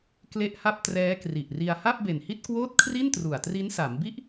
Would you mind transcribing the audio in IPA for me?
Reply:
k l e˦˥ ʔ h a˥˩ p̚ t r ɛː˦˥ k r i˨˩ ʔ r i˧ a̯ h a˥˩ p̚ b e˨˩ n h i˥˩ t̚ k w oː˥˩ t̚ kʰ r i˥˩ n t r u˨˩ a̯ t r i˦˥ n s a˩˦ m b i˥˩ ʔ

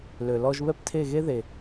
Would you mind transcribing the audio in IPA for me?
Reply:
l ø˨ l ɔ˧ ʒ β ɛ˦ p tʰ e˦˨ ɣ e˦ ð e˨

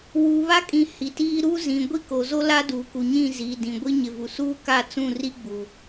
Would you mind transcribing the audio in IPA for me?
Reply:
w u˨ β a˦ kʼ ĩ˨ h i˨ t iː˦ ɾ u˦ z ĩ˨ ɡʷ i˦ k o˨ z o˦ l a˦ d uː˨ k u˨ ɲ ĩ˦˨ z iː˨ d ĩ˨ ɡʷ i˦ ɲ ɪ˨ v u˨ s uː˦ k a˦˨ t͡s ũ˦˨ r i˦ ɡ͡b u˨

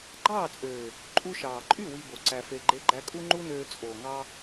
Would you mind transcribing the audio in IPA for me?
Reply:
ɡ͡ǃ ɑː˦˨ t͡sʼ øː˨ | ǃʼ u˧ ʃ ɑː˨ ǃʼ y˦˨ w i˧ b o˨ ǀ æ˧ f e˧ ɡ͡ǃ e˦ ɡ͡ǃ æ˦ kʼ u˦ ŋ͡ǃ u˦ n øː˧ t͡sʼ oː˨ ŋ ɑ˧

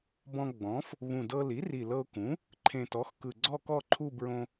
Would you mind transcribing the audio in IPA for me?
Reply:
b ɔ̃˧ ɡ͡b ɔ̃˩˥ f | β ũ˨˩ d ɤ˧ l i˩˥ r i˨˩ l ɤ˧ ʊ̯ k ũ˩˥ | ǃʰ ẽ˨˩ t ɔ˩˥ x k ɯ˨˩ ɡ͡ǀ ɔ˥˧ k ɔ˥˧ ǃʰ u˥˧ b ɹ õ˧

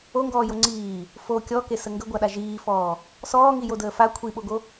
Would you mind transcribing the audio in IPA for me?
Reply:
o ŋ ɡ ɔː j o ŋ͡ǀ iː | f o kʲ ɔ k e s ə ŋ ɡ ə ɡʷ a ɗ a ʒ iː f ɔː | s ɔː ŋ i j o d əː f a kʷʰ i ɓ o ɡ o

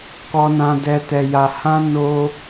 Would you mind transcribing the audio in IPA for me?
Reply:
k ɔ˦ n ã˦ d ɛ˦ t ɛ˧ j a˧ h ã˦ n o˦

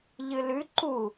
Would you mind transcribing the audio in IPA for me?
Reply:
ʎ ɨ l ʉ ǃ u

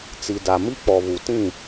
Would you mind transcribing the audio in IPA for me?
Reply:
t͡s i˨ d a˨ m i˦ k͡p ɔ˨ β u˨ t ĩ˦˨

